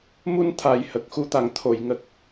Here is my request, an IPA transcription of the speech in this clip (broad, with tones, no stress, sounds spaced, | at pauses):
m u˧ n t̪ʰ a˨˩ j h ə˨˩ k̚ x u˧˥ t̪ a˨˩ ŋ t̪ʰ o˨˩˨ j ŋ ə˨˩ k̚